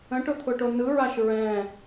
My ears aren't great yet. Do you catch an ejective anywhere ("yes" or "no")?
no